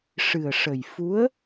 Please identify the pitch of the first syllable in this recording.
low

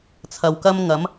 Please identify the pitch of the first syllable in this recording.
low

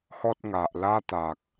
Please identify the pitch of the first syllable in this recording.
high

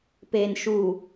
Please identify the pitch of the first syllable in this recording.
low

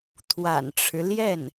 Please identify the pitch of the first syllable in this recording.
low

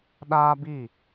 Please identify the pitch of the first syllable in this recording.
high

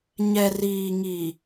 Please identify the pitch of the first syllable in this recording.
low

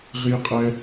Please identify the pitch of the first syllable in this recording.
high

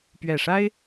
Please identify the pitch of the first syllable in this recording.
low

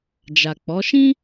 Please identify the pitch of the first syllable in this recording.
low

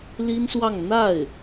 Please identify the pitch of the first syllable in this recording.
high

